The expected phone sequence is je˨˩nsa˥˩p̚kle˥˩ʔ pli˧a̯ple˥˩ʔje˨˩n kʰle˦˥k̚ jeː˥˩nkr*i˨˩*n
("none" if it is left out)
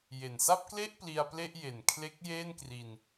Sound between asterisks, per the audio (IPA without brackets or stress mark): i˧